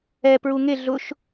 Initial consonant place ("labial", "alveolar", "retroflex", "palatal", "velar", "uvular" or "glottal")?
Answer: labial